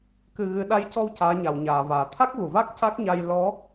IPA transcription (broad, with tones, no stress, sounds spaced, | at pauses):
k ɨ˨˩ ɣ ɨ˨˩˦ ɗ a˧˥ j c ɔ˧ w c aː˧˥ ɲ a˨˩˨ w ɲ aː˨˩˨ v aː˨˩˨ t̪ʰ a˦˥ k̚ v u˨˩˨ v a˦˥ k̚ c a˦˥ k̚ ɲ a˧ j l ɔ˧˥